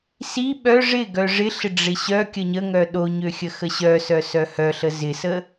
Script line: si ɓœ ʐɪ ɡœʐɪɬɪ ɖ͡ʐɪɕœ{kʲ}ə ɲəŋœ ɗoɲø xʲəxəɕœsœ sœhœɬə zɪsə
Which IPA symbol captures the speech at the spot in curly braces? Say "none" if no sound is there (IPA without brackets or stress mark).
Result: kʲ